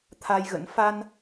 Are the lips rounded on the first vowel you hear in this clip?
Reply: no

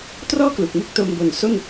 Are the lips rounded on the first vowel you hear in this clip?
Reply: yes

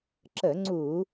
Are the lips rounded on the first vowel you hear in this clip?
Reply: no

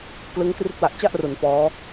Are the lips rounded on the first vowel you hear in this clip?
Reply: no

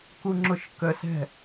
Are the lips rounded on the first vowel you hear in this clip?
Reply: yes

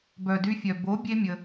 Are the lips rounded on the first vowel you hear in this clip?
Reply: yes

